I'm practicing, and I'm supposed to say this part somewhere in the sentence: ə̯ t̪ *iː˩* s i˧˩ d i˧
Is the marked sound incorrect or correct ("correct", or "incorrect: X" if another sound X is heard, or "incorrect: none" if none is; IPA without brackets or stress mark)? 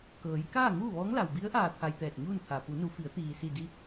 correct